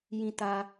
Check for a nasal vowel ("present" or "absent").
present